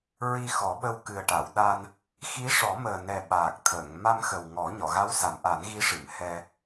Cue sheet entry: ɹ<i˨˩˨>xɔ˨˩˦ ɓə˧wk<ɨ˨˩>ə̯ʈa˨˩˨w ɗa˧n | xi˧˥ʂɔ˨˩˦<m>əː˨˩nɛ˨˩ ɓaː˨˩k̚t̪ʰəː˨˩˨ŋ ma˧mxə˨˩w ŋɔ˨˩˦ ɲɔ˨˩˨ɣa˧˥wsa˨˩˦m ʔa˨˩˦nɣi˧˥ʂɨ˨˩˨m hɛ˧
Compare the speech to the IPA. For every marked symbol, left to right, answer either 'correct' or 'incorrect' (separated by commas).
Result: incorrect, correct, correct